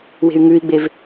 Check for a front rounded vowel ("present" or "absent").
present